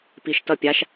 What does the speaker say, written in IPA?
p i ʃ t ʌ pʲ a ʃ

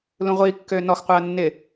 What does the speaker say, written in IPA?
l ũ ʁʷ iː kː øː n ɔ x qʷ ɪː ɐ̯ nː ɪ

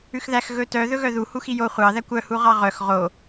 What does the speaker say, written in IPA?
ʉ x ð æ x ɣ ɵ t œ ð ɵ ɣ œ ð u h u x i j o χʷ ɑ ð æ kʷ œ h u ʁ ɑ ʁ œ x ʁ o

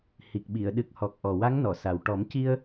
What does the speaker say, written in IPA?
h i˨˩ k̚ ɓ i˨˩˨ ə̯ ɗ ɨ˨˩ k̚ h ɔ˨˩ k̚ ʔ ɔ˨˩ w a˧˥ ŋ n ɔ˨˩˨ s a˨˩ w ʈ ɔ˨˩˦ m c i˧ ə̯

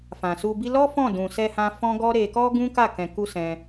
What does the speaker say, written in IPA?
f ã˨ s u˧ b i˦ l ɔ˦ f ɔ̃˦˨ d ũ˨ s ɛ˧ h ã˧ f ɔ̃˦ ɡ ɔ˦ ɾ e˧ k ɔ˦ ɡ ũ˦ k a˦˨ k ɛ̃˧ k u˦ s ɛ̃˧

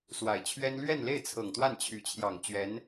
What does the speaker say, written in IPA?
s w a˨˩ ɪ̯ t͡ɕʰ ɥ ɛ˥ n l ɥ ɛ˥˧ n l e˥˩ ɪ̯ t͡sʰ ɤ˨˩ ŋ t̪ w a˥˩ n t͡ɕʰ y˧˥ t͡ɕʰ j ɑ˨˩ ŋ t͡ɕ ɥ ɛ˧˥ n

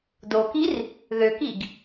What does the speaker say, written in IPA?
d o k i r | ð ø k i ɡ

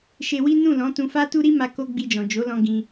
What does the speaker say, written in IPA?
ʃ e˧ w i˦ n ũ˦˨ l ɔ̃˨˦ t ũ˧ f a˦ t u˦ ɾ i˦ m a˧ k o˦ ɡ͡b i˧ d͡ʒ ɔ̃˨ d͡ʒ o˨˦ l ɔ̃˧ ɡ ĩ˧

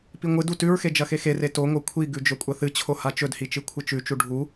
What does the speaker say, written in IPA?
p i ŋʷ ɨ d u t ʉ ɹ x e d͡ʒ ɐ x e x e r e t o ŋ o kʷʰ i ɡ ʉ d͡ʒ ɵ kʷʼ ɐ θ ɨ t͡ɕʰ o h a t͡ʃ ɵ d h i t͡ʃ ɨ kʷʰ ɨ t͡ʃ ʉ t͡ʃ u ɖʱ u

